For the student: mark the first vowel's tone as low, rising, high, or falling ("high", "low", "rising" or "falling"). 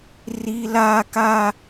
high